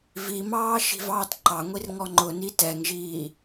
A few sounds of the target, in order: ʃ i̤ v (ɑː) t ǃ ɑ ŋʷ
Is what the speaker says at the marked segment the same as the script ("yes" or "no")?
yes